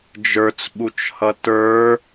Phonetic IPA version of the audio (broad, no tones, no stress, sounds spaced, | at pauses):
d͡ʒ ə˞ t͡s ɓ u t͡ʃ h ʌ t ə˞